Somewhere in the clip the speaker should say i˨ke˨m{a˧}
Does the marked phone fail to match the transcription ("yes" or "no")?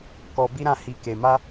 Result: no